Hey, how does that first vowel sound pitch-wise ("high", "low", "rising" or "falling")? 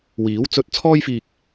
rising